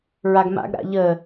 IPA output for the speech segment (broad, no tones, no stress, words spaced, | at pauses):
ɹaɡma̰ɡ ɾa̰ʎə